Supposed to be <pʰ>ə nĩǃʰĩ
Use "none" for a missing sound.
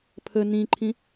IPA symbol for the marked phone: pʰ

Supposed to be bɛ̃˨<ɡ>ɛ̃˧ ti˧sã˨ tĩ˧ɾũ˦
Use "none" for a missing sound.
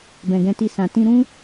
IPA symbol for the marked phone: ɡ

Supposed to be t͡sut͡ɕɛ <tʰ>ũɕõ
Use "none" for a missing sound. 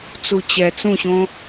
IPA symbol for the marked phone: t͡s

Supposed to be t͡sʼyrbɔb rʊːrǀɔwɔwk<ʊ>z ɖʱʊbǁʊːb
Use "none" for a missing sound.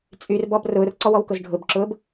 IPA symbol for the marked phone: ʊ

